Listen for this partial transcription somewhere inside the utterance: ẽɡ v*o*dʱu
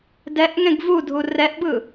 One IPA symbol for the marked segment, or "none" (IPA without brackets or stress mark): u